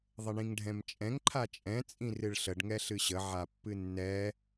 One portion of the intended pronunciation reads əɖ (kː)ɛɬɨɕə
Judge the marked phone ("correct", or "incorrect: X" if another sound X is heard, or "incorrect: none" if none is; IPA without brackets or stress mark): incorrect: ŋ